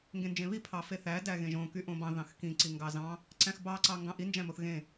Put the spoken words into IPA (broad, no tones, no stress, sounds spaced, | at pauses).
ŋ ɡ ẽ n d͡ʒ ẽ β i pʰ ɑ f e θ æ d æ ɣ ẽ ʒ õ k y ʔ õ b ɑ̃ ð ɑ̃ x k ĩ ǀ i ŋ ɡ ɑ z ɑ̃ | ǀ æ̃ x b ɑ ǀ ɑ ŋ ɡ ɑ̃ ʔ i n d͡ʒ æ̃ m o θ ɣ ẽ